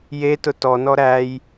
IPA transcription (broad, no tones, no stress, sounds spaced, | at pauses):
j e t ʊ t ɔ n ɔ ɾ æ j